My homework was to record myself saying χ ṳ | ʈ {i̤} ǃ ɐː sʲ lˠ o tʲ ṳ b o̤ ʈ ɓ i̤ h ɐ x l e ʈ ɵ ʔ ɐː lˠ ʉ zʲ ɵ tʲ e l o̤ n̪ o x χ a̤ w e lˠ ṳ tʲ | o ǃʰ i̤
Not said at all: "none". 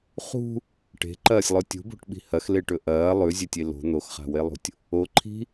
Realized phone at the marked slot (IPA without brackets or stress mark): e̤